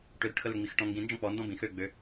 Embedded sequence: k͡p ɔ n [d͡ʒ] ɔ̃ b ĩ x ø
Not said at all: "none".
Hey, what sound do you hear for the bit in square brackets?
d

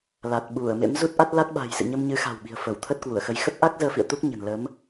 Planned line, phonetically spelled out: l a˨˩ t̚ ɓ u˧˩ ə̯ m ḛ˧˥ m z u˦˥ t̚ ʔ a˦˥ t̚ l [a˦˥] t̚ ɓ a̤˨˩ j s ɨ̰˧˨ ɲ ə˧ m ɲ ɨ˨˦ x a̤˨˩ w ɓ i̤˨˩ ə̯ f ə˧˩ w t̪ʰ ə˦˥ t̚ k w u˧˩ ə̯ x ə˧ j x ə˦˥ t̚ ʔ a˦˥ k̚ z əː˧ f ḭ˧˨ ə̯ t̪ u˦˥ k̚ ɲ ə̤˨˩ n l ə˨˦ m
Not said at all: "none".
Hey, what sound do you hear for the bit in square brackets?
a˦˥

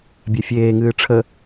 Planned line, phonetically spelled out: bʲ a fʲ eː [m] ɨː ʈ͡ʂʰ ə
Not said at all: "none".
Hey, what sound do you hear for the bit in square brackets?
ŋ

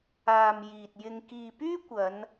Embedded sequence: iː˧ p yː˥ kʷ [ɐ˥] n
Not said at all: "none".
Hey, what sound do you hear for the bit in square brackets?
ɐ˨˧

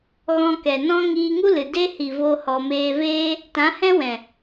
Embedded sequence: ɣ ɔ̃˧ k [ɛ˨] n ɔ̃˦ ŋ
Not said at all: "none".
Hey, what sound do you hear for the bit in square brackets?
ɛ˨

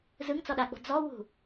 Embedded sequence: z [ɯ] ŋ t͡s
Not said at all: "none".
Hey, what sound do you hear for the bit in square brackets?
ɯ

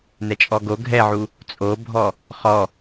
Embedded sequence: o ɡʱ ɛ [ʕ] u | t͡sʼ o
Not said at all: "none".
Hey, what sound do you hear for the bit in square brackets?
ʕ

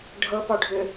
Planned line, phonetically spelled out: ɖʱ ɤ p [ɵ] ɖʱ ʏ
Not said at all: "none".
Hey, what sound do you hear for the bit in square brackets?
ɔ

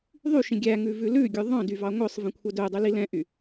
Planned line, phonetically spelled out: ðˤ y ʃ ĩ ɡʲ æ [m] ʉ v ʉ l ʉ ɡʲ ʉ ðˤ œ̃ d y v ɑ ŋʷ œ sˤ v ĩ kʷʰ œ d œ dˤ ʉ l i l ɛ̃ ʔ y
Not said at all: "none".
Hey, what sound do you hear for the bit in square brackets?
ŋ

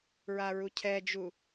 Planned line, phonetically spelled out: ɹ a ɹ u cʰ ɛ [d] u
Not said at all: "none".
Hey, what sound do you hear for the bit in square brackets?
d͡ʒ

